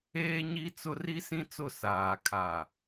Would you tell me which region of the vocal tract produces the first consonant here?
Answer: palate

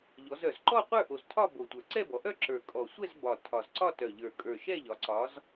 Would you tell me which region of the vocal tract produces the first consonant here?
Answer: palate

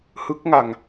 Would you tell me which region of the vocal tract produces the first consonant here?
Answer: throat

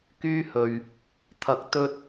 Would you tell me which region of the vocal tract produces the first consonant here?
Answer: velum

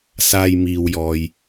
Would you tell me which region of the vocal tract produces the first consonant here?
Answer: tongue tip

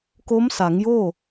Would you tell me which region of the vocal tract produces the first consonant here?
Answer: velum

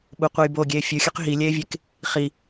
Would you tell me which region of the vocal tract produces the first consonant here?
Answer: lips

